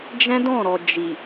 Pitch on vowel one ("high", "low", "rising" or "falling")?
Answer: high